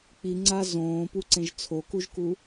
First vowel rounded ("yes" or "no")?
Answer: no